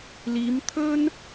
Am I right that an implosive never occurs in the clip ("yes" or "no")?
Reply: yes